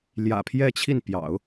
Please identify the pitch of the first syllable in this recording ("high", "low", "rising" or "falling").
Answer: low